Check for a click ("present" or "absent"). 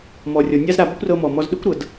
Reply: absent